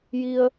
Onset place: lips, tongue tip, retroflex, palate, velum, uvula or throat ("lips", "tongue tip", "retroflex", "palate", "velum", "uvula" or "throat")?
palate